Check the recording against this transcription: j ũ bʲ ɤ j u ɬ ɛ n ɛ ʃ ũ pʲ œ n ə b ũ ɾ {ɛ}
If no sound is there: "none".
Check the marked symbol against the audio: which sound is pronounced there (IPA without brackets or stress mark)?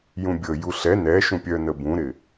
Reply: ɪ